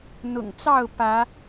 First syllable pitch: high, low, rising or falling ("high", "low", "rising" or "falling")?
low